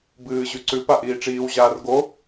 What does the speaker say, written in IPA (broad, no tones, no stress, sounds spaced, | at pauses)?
b ɨː ʑ ʉ ǀ ʉ p a ʔ iː ʈ͡ʂ iː w ʑ aː r ɡ o